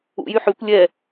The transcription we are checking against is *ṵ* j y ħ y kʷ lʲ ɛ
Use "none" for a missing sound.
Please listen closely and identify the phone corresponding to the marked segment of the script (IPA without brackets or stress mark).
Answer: ṵ